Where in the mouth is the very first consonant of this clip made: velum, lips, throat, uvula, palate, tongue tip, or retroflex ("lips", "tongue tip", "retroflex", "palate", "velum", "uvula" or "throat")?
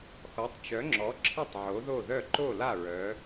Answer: velum